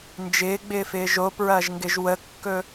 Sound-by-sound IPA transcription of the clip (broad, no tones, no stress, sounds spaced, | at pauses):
n d͡ʒ ɪː ɡ͡b ɪː f ɪː ʒ o p ɹ ɐː ʒ ŋ ɡ ɪ ʒ w ə kː ɵ